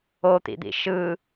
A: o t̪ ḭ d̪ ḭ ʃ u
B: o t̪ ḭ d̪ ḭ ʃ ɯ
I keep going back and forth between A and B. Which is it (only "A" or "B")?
B